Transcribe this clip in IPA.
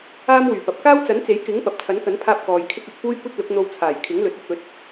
aː˥ m w yː˨˩ p ɐ˨ p̚ k aː˥ w t͡s ɐ˨˥ n t͡s e˨˥ j k ɪ˨˥ ŋ p ɐ˨ p̚ t͡sʰ ɐ˨˥ n k ɐ˨˥ n pʰ aː˧ p̚ k ɔː˨ j kʰ ɪ˥ k̚ ɐ˧ t̚ f uː˥ j kʷ ɐ˥ t̚ l ʊ˨˥ k̚ n̪ o˧ w t͡sʰ aː˨˩ j kʰ ɪ˨˥ ŋ l ɵ˨˥ t̚ ɐ˨˥ k̚ ɵ˨˥ t̚

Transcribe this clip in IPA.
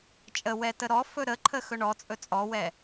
t͡ʃʼ ə w ɛ t ə ɾ ɔ f ɵ ɾ ə ǃʰ ə x ɵ ɳ ɔ t͡sʼ ɵ t͡sʼ ɔ w ɛ

